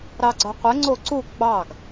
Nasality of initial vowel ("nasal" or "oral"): oral